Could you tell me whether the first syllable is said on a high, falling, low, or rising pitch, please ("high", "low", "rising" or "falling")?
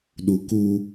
low